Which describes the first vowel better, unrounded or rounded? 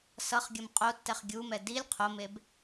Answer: unrounded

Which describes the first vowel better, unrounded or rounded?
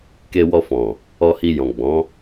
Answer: unrounded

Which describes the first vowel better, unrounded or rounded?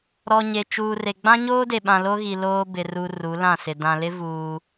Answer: rounded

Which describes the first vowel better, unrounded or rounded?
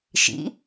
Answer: unrounded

